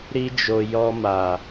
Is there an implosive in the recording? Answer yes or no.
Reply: no